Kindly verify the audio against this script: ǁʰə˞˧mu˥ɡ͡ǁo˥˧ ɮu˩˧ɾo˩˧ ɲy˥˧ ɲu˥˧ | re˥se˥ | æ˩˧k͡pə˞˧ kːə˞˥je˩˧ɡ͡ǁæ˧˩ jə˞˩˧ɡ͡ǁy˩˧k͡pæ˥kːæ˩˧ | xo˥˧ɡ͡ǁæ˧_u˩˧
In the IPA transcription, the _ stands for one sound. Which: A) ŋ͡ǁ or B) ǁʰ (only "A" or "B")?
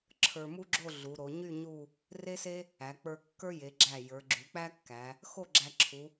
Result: B